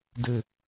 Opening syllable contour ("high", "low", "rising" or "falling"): low